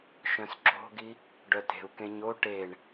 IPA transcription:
ʃ œ̃ s ǁ o̤ ɡ i | ɖ œ t e̤ u̯ k ẽ ɲ o ʈ e ɳ

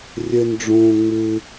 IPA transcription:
rʲ ɘ˥ n ɖ͡ʐ õː˥ ŋ͡m ɨ˥

